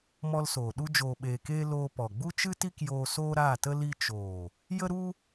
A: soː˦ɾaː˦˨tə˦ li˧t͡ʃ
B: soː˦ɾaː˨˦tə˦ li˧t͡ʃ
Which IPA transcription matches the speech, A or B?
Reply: A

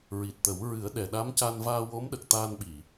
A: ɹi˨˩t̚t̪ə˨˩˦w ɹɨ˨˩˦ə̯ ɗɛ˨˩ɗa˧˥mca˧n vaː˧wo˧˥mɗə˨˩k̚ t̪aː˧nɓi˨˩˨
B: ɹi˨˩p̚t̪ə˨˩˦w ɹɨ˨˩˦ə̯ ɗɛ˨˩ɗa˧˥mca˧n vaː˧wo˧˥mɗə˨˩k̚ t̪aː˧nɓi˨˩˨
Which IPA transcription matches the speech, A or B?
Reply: A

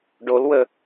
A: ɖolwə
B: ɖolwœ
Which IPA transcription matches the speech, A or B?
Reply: A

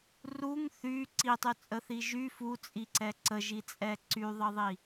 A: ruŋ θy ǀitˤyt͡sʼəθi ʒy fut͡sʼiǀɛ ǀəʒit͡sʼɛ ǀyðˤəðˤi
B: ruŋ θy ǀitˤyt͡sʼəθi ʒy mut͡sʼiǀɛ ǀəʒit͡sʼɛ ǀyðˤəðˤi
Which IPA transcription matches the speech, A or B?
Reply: A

